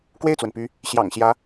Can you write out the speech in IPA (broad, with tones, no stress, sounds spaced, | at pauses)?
k w e˥˩ ɪ̯ t͡s w ə˩ n p y˧˥ | ɕ j ɑ̰˨˩ ŋ ɕ j ä˧˥